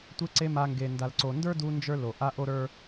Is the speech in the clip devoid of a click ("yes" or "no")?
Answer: no